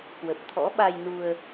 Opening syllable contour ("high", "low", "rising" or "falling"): low